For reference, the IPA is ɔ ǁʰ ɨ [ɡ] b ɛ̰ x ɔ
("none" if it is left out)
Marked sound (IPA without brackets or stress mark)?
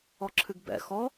ɡ